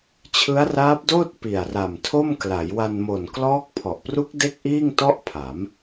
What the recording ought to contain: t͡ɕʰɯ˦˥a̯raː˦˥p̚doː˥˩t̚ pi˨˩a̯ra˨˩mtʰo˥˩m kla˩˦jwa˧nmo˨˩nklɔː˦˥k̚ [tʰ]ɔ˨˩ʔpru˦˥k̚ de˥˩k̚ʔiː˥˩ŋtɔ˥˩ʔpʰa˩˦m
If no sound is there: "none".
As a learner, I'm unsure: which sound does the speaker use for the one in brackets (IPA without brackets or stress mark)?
pʰ